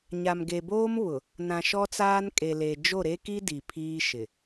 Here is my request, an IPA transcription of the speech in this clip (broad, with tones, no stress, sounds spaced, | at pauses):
ɲ a˨ m ɡ e˨ b oː˦ m β ʊ˨ | n ã˨ ʃ ɔ˦ t͡s aː˦ n kʼ e˨ l e˨ d͡ʒ o˦˨ ɾ e˦ k i˦ d i˨ pʰ iː˦ ʃ ɪ˨